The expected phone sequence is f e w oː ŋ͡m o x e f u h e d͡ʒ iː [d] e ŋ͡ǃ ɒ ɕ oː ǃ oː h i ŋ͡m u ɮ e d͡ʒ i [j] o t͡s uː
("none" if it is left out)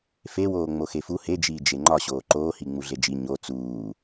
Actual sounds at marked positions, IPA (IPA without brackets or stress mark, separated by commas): d͡ʒ, ɲ